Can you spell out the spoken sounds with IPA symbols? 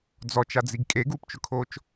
d͡z ɔ t͡ʃ a d͡z i ɡ kʼ e ɡ uː p t͡ʃ ʊ kʰ oː t͡ʃ

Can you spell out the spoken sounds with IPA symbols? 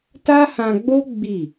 t a˦ h ã˧ ɡ͡b o˦ ɡ͡b i˦˨

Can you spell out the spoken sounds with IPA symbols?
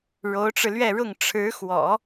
ɻ o˧˥ ʊ̯ ʈ͡ʂ ɻ̩˧ l ɥ ɛ˥˧ ɻ ʊ˥˩ ŋ ʈ͡ʂʰ ɻ̩˧˥ x w ɔ̰˨˩˦

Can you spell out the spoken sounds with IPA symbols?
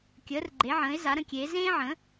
kʲ əː˨˦ r ɡ͡ǃ e˨˦ ʕ ə̃ː˨˦ ɪ̯ z a˨˦ ɾ ə̃˨˦ kʲ eː˨˦ z ẽː˦ ʕ ə̃˨˦

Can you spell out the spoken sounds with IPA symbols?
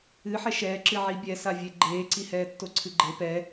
ɨ ħ ɛ ʃ ɛː ǁ ɨ ʕ i bʲ ɛ s a vʲ e ɡ͡ǃ eː ǀ i h ɛː tː o ǀʰ ɨ ɡ͡ǃ e p ɛ

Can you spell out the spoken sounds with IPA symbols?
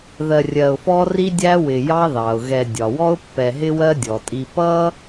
ð ɜ˨ rʲ ɜ˨ ʊ̯ f ɔ˦ r i˦ dʲ æ˦ w ɪ˨ j ɑ˦ ð ɑ˩ ʊ̯ ɣ ɛ˨ dʲ ɒ˩ w ɔ˦ ʊ̯ pː ɛ˨ ɦ ɪ˦ w ɜ˦ dʲ ɔ˩ tʼ i˨ p ʌ˥

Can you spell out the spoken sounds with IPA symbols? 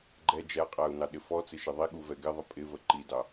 ɡ͡ǃ ɛ d͡ʒ æ qʼ æ u̯ n ɑ ɗ ɪ f ɔ t͡s ɪ ʃ ɪ ðˤ i ɠ u v ɛ ɡ ɪ ðˤ ə pʼ ɪ v ə ǃ i d ɑ

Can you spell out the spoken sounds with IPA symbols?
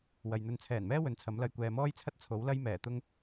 w ɐ˨ j n̪ ɵ˧ n t͡sʰ ɛː˨˩ n m ɛː˥ w ɵ˨˥ n t͡sʰ ɐ˨˥ m l ɐ˧ j kʷ ɛː˨ m ɔː˥ j t͡sʰ ɐ˥ t̚ t͡sʰ o˨˥ w l ɐ˥ j m ɛː˨˩ t̪ ʊ˥ ŋ

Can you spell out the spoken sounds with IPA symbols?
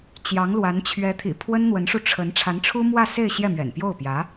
t͡ɕ j ɑ˧˥ ŋ l w a˧˥ n t͡ɕʰ ɥ ɛ˧˥ t̪ʰ ḭ˨˩ pʰ w ə˥ n n̪ w ə˧˥ n ʂ u˧ ʈ͡ʂʰ ə˧˥ n ʈ͡ʂʰ a˧˥ n ʈ͡ʂʰ u˥ m w ä˥˧ s e˥˧ ɪ̯ ɕ j ɛ˥˩ m ɥ ɛ̰˨˩ n p j o˥˩ ʊ̯ p j ä˧˥

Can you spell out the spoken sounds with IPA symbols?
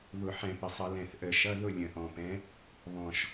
β ʊ˧˩˧ ħ ɛ̃˧˩˧ p ə˨˩ sˤ ʌ˧˩˧ l ɛ̃˨˩ θ ʔ ə˧˩˧ ʃ ʌ˧˥˧ ð ʊ˥˧ lʲ ə̃˨˩ ʔ ɔ̃˨˩ p ɛ̃˨˥ | β ɔ̃˨˩ ʃ

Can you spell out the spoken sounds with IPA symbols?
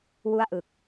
w u˥˩ a̯ ʔ ɯ˨˩ k̚

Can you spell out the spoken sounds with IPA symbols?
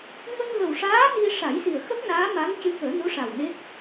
ŋ ə˧ ŋ ɣ ə˨˩ w ʂ aː˧˥ n i˧ ʂ a˨˩˦ j s i˨˩ ə̯ x ə˦˥ k̚ n aː˧˥ m a˧˥ ŋ c ɨ˧˥ k əː˨˩˦ n u˧˥ ʂ a˨˩ w n e˦˥ k̚

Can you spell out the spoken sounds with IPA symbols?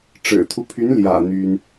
ʈ͡ʂ ɻ̩˨˩ t̪ʰ u˦ pʰ y˧˥ n l j ä̰˨˩ n̪ y˥ n

